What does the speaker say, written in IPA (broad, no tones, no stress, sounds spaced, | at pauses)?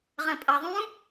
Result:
ʁ ɐ̃ pʼ ɐ ðˤ ũ